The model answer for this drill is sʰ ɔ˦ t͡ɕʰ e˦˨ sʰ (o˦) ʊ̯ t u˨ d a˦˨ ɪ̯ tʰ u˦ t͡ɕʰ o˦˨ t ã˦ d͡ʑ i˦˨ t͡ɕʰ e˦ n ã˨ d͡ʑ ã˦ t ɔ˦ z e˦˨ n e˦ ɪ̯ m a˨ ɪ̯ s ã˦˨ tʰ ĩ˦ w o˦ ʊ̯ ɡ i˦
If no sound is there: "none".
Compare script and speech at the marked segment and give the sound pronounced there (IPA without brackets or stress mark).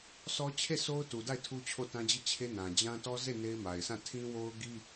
o˦